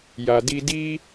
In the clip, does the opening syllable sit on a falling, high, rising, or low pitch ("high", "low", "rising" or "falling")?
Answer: low